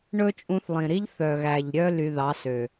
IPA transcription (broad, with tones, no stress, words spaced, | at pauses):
ɳɵ˦t͡ʃʼũ˧θlˠĩ˨ɾi˦ʎ θœ˨ɣæ˨ʎ ɾʲœ˦ ly˧ðɑ˨˦sø˨